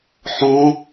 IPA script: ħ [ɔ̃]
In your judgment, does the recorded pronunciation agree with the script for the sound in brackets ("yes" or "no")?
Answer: yes